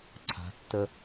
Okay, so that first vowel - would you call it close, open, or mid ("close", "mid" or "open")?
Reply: open